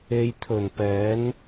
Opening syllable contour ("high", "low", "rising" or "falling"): low